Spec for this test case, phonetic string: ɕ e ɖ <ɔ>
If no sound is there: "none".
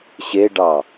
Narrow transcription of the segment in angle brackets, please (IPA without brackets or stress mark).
ɑ